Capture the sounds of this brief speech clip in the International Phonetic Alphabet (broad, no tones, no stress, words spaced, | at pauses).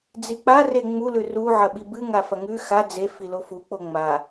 d͡zik͡pa reŋ͡mulʉ ruʕɐ ɓibɨŋa fɐŋʉ xa d͡ze filofuk͡po ŋ͡ma